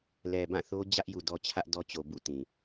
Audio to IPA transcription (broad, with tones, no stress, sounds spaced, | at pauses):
l ɛ˨ b ã˦˨ θ o˦ d͡ʑ ä˦ ʔ j u˨ d ɔ˦ t͡ɕʰ ä˦ ʔ d ɔ˦ t͡ɕ o˨ b ṵ˦˨ t ĩ˨